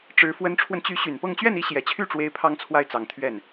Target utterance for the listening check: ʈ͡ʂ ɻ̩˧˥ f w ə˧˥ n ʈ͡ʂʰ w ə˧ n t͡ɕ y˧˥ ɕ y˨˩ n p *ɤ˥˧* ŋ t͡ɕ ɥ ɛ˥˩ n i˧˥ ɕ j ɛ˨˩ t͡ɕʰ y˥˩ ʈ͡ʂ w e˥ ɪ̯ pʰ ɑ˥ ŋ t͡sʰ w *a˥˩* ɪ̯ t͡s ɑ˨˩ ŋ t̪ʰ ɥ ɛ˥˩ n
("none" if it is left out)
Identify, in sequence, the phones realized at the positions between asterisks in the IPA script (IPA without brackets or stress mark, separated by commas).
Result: ɤ˥˧, a˥˩